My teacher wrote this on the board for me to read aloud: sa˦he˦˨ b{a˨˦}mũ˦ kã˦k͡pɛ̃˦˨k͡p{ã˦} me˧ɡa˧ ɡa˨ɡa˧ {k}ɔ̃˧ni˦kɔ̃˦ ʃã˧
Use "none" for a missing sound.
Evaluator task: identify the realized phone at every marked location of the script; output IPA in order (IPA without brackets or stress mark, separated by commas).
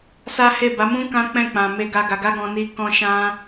a˨˦, ã˨, ɡ